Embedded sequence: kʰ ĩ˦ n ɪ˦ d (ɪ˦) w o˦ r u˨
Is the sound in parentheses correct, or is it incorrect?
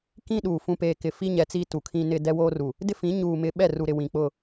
incorrect